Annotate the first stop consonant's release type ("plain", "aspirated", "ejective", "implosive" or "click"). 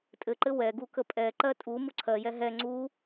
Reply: ejective